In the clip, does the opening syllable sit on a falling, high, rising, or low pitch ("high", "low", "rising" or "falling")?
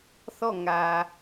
falling